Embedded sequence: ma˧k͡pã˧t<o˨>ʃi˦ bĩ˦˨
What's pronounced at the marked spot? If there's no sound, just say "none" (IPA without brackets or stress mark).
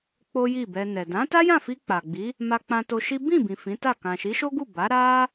o˧